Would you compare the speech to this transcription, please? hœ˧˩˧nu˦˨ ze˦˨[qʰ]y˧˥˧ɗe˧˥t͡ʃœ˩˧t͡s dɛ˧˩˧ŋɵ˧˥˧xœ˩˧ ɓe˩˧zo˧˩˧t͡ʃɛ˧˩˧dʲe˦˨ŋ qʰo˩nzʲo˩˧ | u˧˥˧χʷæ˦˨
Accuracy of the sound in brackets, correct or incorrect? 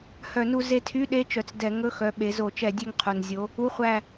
incorrect